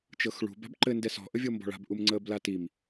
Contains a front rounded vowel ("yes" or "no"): no